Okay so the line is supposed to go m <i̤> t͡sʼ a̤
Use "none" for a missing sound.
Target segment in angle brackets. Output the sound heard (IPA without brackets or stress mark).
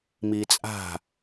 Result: i